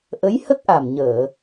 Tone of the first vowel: rising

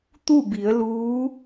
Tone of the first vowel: falling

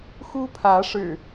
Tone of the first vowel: high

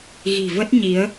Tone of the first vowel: low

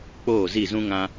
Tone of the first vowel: falling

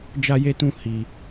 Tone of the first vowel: high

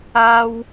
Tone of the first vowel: high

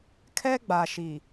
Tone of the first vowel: high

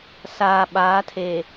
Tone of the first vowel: low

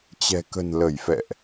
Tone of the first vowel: low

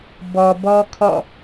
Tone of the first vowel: low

